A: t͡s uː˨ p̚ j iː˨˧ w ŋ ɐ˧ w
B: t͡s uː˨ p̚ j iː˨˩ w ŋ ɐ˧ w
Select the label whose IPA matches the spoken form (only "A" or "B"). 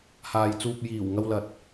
B